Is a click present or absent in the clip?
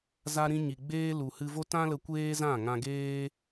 absent